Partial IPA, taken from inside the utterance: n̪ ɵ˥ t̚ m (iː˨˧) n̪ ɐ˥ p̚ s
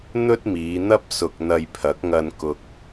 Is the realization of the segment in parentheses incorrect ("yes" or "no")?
no